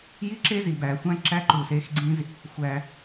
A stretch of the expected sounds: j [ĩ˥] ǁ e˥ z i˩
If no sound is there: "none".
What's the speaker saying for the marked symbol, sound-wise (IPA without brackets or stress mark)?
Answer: i˥